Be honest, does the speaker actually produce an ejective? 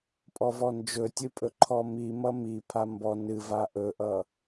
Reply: yes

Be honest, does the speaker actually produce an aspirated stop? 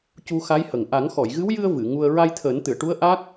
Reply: yes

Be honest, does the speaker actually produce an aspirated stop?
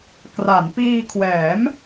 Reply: yes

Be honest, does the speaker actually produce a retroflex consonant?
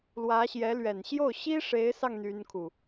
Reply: yes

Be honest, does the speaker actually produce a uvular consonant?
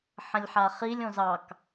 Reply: yes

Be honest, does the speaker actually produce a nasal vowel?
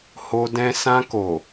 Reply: yes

